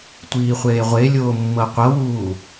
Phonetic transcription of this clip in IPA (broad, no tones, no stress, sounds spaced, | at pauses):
tʷ iː χʷ eː ʁʷ e lʲ oː mː ɤ qʷ ɤ w uː